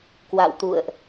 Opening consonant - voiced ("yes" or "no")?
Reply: no